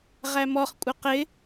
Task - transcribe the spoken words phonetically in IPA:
ʁ æ m ɔ χ kʷʼ ɪ q ɪ

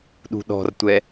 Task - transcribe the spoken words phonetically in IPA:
ɗ ṳ ɗ ɔ̤ r tʷ ɛ

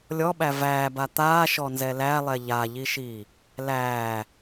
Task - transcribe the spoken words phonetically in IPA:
lʲ ɔ ɓ æ v æː b a t̪ aː ʃ ɔ n z ɛ l æ lˠ ɛ ʎ a ʎ i ʃ iː | l æː

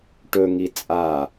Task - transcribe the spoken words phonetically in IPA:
ʈ ɵ ŋ i t͡sʼ a

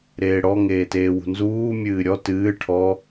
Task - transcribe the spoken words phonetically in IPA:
ɾ eː ɽ ɔ ŋ eː t eː w ṳ n z uː mʲ ɨː ɾʲ ɔ t ɨː ʈʰ ɔ

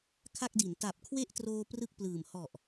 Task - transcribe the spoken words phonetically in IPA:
kʰ a˥˩ k̚ d i˩˦ n t a˨˩ p̚ kʰ w e˥˩ ʔ t r oː˧ p r ɯ˥˩ k̚ p l ɯː˨˩ m h ɔ˨˩ ʔ

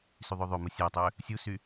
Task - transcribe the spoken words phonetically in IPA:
s y ðˤ ø ðˤ ø m ɯ sʲ æ tˤ ø | sʲ u s y

